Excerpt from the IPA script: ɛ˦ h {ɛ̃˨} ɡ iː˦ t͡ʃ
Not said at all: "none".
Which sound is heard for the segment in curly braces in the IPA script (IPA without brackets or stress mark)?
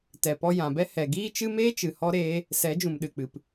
ɛ˨